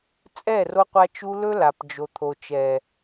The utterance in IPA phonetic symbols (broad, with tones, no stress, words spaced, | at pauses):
t͡sʼɛ˦˨ro˧qʷa˧t͡ʃu˧ lɵ˦la˨pd͡ʒo˨ t̪ʰo˨t͡ʃɛ˨